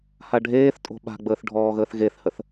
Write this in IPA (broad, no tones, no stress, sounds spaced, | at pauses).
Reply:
h a ɖʱ eː θ tʼ o̤ ɓ a̤ ɡ͡b əː θ ɖʱ ɔː ɣ əː θ ɣ e θ h ə θ